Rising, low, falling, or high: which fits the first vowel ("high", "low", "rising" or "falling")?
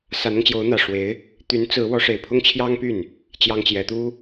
rising